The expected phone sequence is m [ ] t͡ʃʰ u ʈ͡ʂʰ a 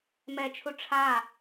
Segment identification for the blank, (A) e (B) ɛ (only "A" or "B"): B